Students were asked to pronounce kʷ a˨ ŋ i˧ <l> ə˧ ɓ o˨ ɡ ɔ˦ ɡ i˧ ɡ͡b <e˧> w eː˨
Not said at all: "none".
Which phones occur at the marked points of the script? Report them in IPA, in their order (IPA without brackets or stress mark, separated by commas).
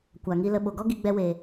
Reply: l, ɛ˧